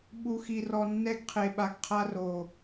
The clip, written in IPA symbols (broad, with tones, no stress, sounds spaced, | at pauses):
ɓ u˨ x i˨ r ɔ˨ nː ɛ˦ ɡ qʰ e˨ ɓ a˨ ɡ qʰ a˦ r o˨